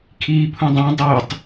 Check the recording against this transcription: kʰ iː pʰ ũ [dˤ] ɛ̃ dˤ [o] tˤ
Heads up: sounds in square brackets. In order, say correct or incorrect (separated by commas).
correct, correct